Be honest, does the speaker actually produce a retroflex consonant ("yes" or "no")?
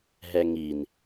no